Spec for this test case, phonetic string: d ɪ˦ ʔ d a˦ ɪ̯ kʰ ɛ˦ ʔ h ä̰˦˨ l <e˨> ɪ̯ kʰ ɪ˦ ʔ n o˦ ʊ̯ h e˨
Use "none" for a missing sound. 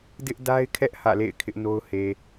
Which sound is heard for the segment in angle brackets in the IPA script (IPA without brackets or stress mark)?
ḛ˦˨